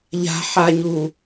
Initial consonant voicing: voiced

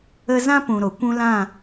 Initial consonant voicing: voiced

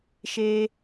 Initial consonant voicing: voiceless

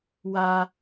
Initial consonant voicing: voiced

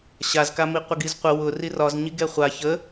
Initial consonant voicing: voiceless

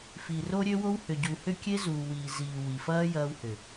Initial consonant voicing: voiceless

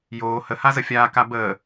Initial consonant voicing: voiced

